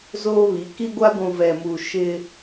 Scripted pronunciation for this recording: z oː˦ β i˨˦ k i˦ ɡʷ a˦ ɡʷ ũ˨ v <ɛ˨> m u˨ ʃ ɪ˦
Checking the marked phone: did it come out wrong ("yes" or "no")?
no